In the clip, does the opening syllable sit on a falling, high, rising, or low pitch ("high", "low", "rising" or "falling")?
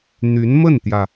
rising